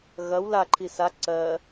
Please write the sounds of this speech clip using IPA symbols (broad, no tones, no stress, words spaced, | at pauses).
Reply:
ɣɐw laǃʰi sa ǀɜ